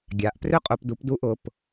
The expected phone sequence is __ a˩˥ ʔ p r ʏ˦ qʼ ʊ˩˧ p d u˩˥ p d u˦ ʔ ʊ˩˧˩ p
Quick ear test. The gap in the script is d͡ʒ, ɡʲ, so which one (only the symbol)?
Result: ɡʲ